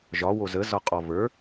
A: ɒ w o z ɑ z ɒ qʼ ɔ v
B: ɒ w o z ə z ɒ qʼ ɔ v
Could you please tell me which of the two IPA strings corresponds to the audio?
B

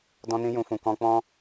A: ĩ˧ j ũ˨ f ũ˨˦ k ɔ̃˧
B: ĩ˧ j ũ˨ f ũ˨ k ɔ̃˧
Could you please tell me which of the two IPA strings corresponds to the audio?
B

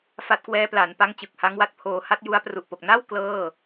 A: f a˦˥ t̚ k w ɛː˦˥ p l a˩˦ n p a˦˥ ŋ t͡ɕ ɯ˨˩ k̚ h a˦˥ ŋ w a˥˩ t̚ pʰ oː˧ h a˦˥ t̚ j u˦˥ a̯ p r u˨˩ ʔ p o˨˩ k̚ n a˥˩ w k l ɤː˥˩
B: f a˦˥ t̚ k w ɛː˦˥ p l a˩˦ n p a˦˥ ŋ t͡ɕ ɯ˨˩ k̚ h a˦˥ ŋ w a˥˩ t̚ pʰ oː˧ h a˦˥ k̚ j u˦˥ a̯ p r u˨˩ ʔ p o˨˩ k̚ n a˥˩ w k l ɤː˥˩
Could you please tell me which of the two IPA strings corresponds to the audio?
A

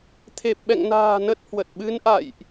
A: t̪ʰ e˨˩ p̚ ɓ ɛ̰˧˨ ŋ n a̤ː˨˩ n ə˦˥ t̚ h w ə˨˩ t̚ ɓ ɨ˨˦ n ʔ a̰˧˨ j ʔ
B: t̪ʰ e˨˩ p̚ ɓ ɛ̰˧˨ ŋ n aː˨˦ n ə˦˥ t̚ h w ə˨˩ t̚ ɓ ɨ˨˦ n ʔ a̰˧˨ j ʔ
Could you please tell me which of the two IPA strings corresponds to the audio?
A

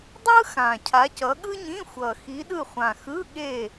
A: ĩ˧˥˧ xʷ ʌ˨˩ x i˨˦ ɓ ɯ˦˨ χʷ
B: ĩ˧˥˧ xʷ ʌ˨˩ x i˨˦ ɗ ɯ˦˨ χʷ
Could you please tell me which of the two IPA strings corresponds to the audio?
B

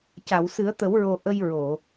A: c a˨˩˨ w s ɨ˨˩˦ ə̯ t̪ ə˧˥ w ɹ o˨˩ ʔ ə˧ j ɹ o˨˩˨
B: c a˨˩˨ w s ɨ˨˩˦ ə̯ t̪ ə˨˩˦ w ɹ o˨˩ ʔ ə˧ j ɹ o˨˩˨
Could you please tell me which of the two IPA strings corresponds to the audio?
B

